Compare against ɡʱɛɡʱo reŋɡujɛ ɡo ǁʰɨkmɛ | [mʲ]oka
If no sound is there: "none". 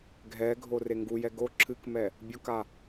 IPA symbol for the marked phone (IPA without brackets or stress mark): bʲ